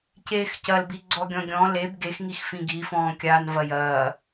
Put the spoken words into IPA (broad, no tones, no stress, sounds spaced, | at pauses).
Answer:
c eː x c ɐ l b i ɡ͡ǀ ɔ ɡʲ ɔ̃ ɡʲ ɔ̃ l e b ɡ e x ŋ i x f ĩ ɡ i f ɔ̃ː kʲ aː n v ɐ j ɐː